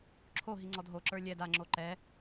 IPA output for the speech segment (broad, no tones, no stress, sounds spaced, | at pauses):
ǁʰ o ɦ i ŋ͡ǀ ɔ d ɦ o ǁ ə˞ lʲ ɛ d a ŋ͡ǁ o ǃ ɛ